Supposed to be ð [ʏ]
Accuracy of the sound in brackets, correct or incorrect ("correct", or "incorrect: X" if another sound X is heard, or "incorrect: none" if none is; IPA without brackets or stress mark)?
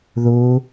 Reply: incorrect: u